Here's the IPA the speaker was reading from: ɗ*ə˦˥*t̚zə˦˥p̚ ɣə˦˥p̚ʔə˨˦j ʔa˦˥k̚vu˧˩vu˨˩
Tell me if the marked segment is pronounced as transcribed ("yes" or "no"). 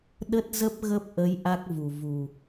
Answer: yes